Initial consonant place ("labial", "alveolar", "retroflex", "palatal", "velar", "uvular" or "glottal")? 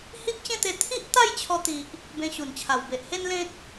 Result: glottal